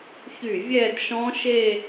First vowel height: high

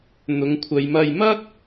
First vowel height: high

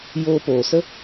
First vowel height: mid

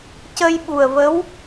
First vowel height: mid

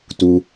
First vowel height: high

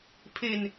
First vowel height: mid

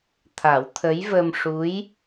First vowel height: low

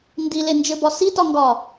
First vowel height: high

